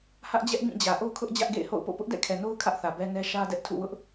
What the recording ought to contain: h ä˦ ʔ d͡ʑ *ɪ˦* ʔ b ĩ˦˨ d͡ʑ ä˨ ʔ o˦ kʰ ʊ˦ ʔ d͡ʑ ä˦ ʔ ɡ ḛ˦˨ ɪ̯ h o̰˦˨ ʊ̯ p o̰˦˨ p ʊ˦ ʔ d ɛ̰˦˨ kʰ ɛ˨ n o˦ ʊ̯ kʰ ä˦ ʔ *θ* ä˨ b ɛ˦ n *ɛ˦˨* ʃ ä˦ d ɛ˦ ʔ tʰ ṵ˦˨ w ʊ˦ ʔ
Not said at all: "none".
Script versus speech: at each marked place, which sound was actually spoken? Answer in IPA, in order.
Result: ɛ˦, θ, ɛ˦

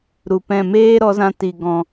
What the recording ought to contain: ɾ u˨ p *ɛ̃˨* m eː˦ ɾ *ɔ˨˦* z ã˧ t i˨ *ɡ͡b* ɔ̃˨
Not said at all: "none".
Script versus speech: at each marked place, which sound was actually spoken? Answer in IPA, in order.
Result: ɛ̃˦˨, ɔ˨˦, ɡ

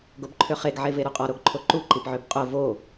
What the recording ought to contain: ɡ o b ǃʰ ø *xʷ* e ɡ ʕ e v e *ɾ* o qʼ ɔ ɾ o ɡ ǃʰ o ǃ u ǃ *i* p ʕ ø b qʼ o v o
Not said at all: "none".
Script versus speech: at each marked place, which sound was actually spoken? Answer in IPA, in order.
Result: χ, ɾ, i

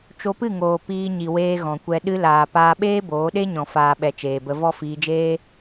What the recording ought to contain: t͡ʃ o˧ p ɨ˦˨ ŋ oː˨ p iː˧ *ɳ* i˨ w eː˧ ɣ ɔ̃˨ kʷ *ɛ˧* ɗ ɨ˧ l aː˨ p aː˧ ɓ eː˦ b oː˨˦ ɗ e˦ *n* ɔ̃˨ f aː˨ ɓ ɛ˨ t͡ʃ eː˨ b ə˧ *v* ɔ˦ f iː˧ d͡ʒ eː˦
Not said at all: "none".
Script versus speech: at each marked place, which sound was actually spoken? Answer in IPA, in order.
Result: ɲ, ɛ˧, ɲ, v

